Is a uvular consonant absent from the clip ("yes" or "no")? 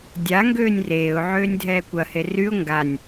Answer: yes